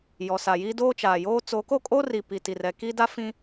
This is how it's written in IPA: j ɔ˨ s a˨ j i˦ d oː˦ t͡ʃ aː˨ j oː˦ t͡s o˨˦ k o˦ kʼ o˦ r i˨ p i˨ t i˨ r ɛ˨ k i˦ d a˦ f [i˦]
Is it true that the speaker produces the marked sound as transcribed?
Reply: no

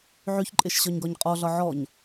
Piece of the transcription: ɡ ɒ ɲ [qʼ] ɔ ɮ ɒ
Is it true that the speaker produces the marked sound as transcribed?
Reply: yes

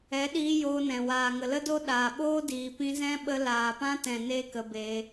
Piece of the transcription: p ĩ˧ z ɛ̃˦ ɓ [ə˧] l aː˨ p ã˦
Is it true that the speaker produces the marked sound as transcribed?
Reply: yes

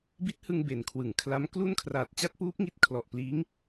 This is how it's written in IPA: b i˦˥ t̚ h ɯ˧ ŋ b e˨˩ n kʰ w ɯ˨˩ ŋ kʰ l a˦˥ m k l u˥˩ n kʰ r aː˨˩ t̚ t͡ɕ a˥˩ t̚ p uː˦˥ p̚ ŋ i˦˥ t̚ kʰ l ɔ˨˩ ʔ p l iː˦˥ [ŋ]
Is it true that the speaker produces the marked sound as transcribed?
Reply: yes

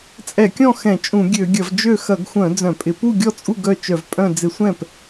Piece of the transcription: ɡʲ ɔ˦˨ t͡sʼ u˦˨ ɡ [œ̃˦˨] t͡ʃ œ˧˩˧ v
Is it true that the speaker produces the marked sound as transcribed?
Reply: no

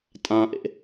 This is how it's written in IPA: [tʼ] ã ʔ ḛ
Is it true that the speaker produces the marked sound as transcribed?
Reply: yes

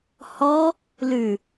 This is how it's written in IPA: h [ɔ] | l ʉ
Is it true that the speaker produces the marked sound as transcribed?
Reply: yes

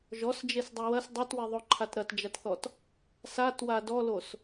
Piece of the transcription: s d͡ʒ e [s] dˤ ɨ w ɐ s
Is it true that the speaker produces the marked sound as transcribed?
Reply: yes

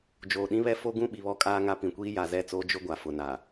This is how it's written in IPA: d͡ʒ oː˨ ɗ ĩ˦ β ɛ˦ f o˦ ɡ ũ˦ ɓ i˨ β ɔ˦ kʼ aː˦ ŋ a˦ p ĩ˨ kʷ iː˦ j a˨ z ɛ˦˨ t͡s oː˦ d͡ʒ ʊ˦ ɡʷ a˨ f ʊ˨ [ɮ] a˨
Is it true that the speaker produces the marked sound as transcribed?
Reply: no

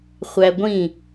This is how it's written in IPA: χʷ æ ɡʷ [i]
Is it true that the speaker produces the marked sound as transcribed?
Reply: no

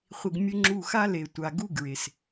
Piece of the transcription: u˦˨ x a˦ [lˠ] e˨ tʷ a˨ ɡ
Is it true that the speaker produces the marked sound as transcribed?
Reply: no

